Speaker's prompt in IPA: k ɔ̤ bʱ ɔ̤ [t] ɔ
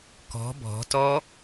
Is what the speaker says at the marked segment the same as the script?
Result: yes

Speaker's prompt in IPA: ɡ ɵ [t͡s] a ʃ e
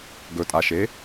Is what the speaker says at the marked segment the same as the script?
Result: no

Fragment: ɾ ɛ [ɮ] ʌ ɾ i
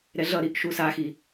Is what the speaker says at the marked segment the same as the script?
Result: yes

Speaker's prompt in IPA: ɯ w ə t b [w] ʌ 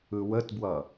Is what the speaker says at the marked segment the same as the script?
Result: yes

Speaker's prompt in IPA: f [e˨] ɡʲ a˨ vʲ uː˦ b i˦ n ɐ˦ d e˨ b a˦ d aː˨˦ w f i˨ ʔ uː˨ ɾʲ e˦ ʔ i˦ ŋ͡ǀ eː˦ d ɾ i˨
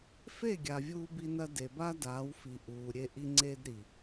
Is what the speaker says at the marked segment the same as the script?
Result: no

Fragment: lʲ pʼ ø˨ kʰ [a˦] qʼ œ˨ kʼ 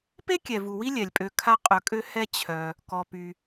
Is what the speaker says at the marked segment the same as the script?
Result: yes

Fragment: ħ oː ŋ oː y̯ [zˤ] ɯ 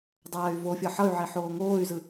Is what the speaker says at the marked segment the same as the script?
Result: no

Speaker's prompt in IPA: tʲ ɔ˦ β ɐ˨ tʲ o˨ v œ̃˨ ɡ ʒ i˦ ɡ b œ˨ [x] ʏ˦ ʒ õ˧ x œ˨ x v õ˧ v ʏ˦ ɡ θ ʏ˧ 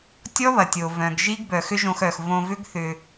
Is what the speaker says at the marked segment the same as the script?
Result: yes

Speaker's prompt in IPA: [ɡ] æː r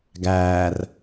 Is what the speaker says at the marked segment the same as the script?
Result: yes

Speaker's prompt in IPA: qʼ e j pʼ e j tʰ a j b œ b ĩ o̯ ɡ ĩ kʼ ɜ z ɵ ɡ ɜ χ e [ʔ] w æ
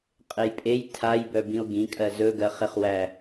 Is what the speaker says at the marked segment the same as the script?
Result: no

